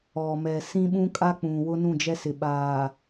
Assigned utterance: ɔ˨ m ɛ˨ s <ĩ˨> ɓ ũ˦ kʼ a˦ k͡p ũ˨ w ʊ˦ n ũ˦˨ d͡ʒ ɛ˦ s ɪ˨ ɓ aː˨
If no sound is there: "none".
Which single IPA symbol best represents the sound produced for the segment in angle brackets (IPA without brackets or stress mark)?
ĩ˦